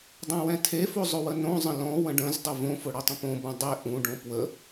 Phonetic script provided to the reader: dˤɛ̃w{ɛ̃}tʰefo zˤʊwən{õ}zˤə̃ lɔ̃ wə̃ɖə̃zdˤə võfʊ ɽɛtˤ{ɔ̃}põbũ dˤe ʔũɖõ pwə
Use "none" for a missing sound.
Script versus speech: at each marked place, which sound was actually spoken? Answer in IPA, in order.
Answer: ɛ̃, õ, ə̃

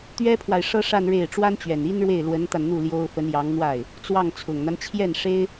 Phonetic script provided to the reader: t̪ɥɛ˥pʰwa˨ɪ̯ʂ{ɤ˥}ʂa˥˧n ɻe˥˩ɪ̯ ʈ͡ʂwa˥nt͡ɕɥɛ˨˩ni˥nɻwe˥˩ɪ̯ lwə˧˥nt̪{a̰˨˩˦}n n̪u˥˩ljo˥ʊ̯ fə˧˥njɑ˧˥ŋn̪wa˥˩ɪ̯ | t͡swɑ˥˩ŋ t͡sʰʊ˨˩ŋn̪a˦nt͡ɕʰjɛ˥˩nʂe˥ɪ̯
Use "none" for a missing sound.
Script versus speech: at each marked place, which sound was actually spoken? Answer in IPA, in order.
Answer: ɤ˥, a˧

